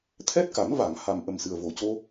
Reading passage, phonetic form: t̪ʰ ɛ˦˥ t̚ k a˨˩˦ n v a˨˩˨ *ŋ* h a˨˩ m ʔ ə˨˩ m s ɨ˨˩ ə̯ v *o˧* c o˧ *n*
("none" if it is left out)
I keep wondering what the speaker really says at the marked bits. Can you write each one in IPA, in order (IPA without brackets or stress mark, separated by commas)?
ŋ, o˨˩, none